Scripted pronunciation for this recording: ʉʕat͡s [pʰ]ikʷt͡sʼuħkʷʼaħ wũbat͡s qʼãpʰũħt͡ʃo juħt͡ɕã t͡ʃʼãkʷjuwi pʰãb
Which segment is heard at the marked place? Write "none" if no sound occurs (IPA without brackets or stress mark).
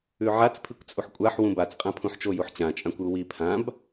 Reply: pʰ